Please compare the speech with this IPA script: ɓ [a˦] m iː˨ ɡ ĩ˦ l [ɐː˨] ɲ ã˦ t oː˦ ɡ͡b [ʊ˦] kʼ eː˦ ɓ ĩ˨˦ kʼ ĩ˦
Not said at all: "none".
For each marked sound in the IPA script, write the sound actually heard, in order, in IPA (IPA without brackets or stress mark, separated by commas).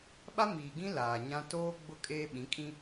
a˦, aː˨, ʊ˦